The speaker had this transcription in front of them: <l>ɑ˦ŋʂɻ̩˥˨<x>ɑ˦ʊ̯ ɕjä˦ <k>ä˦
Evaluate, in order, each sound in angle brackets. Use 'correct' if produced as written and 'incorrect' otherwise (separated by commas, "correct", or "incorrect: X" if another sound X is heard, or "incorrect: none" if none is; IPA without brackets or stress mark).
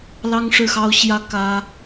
correct, correct, correct